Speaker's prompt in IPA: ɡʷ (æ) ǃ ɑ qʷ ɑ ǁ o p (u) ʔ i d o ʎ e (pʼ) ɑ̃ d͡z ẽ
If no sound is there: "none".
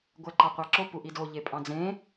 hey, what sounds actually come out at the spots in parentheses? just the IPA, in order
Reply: æ, u, pʼ

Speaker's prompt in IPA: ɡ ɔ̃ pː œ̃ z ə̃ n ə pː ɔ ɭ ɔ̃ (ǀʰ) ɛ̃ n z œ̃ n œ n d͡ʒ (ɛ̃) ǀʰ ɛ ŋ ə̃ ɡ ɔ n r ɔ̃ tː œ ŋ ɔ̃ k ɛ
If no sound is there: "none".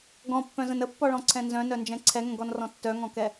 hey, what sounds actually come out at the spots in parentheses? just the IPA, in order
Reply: ǀʰ, ɛ̃

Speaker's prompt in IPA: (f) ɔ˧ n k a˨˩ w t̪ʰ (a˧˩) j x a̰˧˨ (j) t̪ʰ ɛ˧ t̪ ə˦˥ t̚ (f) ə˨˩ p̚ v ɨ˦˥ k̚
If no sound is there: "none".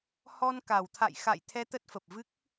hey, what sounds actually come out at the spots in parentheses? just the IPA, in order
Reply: h, a̰˧˨, j, f

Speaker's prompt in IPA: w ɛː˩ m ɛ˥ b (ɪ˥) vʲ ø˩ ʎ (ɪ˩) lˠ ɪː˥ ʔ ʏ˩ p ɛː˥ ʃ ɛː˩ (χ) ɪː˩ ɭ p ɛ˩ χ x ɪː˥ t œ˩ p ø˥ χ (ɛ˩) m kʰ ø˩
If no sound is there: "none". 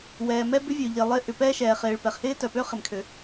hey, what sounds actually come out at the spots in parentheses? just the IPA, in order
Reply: ʏ˥, ɪ˩, χ, ɪ˩

